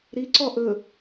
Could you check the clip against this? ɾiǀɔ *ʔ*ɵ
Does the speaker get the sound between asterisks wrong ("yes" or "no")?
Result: no